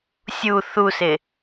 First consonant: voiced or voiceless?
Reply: voiceless